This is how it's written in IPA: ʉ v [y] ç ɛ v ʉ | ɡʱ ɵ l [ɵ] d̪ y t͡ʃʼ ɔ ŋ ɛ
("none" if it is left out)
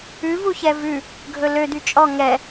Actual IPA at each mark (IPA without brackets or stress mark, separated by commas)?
u, ø